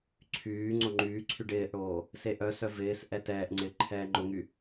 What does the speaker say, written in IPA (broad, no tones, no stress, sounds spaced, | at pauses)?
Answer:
ǀʰ yː ŋ͡ǀ o ŋ͡ǃ yː ǀʰ y ɖ ɪː ʔ ɽ oː | s e ʔ œ s œ v ɪː s ʔ ɛ t ɛː ʔ ŋ͡ǀ ɪː ǃʰ ɛː ŋ͡ǃ ʊ ŋ y